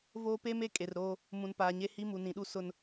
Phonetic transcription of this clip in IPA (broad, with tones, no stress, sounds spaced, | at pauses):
v oː˦ p e˦ m e˦ kʼ e˨ r ɾ oː˦ | m ũ˨ n p aː˨ ɲ e˦ h i˦ m u˨ n ĩ˨ ɗ u˦ s ʊ˦ n